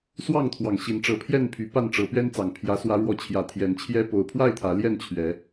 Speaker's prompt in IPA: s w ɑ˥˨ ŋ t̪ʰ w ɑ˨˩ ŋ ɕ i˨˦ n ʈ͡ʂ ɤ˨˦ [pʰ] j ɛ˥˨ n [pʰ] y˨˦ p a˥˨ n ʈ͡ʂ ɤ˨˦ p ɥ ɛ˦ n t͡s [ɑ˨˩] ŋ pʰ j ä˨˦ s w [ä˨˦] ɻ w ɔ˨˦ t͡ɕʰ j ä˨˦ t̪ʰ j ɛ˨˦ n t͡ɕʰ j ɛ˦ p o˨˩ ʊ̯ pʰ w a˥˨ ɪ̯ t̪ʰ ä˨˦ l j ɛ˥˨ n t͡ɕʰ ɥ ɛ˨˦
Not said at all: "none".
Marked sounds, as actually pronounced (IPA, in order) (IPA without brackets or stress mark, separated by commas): pʰ, pʰ, ɑ˨˩, ä˨˦